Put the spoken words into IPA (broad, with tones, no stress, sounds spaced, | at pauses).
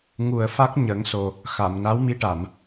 ŋ u˨˩ ə̯ f a˦˥ k̚ ɲ ə˨˩˦ ŋ s o˨˩ | x a˨˩˨ m n a˧˥ w m i˧ ʈ a˨˩˨ m